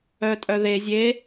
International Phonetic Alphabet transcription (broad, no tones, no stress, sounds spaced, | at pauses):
œ tʼ œ ð e zʲ e